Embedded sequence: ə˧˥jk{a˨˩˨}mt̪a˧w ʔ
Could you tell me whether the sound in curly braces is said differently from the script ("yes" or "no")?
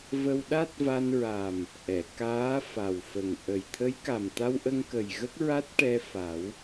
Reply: yes